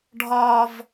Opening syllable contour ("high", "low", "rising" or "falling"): high